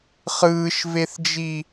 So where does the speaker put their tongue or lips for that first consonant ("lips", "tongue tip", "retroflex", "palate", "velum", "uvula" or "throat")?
uvula